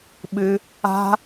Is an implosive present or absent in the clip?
present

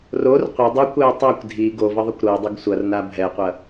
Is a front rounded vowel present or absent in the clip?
absent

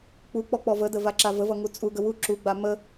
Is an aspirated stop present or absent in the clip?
absent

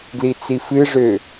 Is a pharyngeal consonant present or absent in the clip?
absent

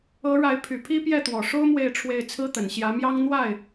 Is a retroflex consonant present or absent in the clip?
present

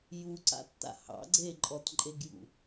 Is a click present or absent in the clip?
present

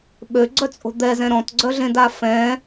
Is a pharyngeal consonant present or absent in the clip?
absent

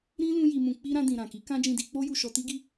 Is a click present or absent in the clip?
absent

